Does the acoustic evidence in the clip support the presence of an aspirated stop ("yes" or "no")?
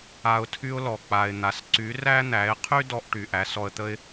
yes